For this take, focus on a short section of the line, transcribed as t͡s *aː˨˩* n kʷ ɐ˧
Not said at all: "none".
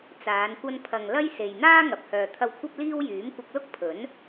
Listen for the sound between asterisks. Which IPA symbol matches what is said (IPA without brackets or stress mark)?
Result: aː˨˧